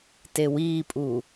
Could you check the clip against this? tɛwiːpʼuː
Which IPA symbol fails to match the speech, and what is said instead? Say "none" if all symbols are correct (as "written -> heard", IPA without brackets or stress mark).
ɛ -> e